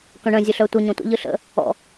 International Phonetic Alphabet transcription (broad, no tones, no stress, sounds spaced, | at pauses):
k œ̃ ɳ ə̃ zʲ ɯ ɬ œ tʷ ə ɲ ɔ̃ tʷ ə̰ ʎ ɯ ɬ ə̰ | ɔ̰